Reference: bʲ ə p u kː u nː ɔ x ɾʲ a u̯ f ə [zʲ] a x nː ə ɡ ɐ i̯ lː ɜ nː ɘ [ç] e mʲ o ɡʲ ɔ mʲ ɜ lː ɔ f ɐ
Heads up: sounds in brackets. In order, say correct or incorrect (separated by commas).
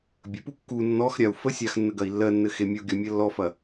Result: incorrect, incorrect